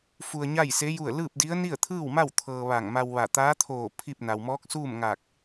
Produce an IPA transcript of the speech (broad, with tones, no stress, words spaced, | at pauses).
fu˧ə̯ɲa˥˨jse˧˥ ju˥˨ə̯ lɯː˥˨p̚di˧˥ə̯ ni˥˨ə̯t̪ʰɯː˥˨wma˥˨w t̪ʰɤː˧ʋa˧˩ŋma˧wʋa˧˩ t̪aː˧˥t̪ʰoː˧˩ pʰi˥˨p̚ na˩wmɔː˧˥k̚suː˥˨mŋa˧˩k̚